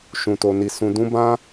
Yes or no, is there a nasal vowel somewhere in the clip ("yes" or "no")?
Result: yes